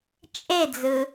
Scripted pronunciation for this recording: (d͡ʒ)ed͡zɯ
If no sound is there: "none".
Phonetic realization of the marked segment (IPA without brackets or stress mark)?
t͡ʃʼ